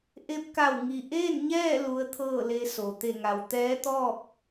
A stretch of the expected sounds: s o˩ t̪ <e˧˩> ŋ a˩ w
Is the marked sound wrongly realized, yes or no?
no